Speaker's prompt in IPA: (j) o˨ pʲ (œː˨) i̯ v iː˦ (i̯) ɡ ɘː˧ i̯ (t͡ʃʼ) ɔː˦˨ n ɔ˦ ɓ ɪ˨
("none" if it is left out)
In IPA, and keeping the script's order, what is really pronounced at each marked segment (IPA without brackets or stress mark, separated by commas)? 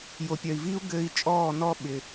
j, œ˨, u̯, t͡ʃʼ